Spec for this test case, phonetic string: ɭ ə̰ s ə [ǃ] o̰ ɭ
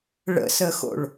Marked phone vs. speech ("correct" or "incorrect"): incorrect